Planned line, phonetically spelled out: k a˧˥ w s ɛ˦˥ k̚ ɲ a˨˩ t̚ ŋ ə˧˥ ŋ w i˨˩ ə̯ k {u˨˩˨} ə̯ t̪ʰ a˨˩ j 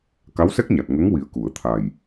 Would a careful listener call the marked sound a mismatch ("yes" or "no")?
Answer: no